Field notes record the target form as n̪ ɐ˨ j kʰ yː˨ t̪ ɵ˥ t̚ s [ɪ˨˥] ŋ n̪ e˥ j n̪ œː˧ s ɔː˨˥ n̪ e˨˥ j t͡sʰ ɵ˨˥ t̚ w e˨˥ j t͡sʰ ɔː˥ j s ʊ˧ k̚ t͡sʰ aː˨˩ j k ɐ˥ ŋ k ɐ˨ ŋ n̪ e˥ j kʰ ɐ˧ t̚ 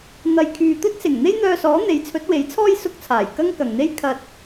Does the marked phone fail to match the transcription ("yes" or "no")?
yes